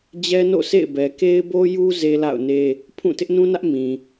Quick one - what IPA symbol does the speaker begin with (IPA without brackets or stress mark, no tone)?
d͡ʑ